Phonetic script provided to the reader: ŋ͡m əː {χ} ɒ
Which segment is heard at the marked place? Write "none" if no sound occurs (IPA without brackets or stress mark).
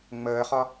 χ